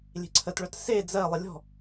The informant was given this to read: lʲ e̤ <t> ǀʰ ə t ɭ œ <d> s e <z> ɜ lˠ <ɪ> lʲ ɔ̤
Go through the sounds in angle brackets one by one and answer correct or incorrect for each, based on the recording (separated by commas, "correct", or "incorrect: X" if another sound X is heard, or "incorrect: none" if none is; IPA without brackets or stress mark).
incorrect: none, incorrect: t, incorrect: d͡z, correct